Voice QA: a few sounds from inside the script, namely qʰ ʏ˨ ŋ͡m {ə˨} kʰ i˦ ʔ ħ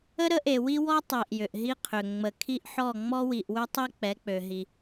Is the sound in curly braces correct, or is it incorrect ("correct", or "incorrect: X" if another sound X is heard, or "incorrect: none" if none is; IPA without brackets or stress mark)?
correct